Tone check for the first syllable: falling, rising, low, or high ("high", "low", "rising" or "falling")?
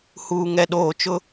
low